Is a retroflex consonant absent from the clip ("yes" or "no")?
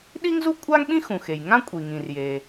yes